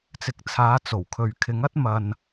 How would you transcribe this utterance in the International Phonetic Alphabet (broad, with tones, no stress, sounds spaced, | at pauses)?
t͡s ɪ˨ k̚ t͡sʰ aː˨˧ t͡s o˨˩ w kʰ ɵ˨ ɥ kʰ ɪ˨˧ ŋ ɐ˥ t̚ m ɐ˨ n